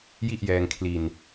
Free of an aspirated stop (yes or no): no